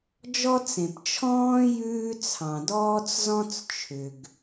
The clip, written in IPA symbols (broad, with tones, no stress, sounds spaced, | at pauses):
d͡ʒ ɔ˥ t͡s ẽ˩ p t͡ʃʰ ɔ̃ː˥ j ʉː˥ t͡sʰ ɑ̃˩ d ɔː˥ t͡s z ɔ̃˥ t͡s t͡ʃʰ ʏ˩ ɡ